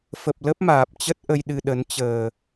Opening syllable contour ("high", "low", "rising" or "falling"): low